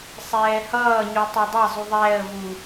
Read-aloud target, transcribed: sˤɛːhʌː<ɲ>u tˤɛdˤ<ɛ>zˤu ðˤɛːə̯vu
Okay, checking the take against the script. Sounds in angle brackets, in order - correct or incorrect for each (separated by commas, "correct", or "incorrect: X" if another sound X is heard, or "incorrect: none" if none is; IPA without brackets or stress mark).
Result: correct, correct